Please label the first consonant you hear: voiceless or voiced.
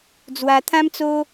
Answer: voiced